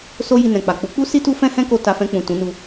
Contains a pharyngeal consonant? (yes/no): no